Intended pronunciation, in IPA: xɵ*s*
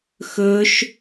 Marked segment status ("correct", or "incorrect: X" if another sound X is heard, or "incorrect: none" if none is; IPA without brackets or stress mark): incorrect: ʃ